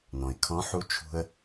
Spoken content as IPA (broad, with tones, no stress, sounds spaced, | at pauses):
n ɔ̃˩ ɪ̯ kʰ ɔ̃˧˥ ħ u˧˥ t͡ʃʰ ṳ˧ ə̯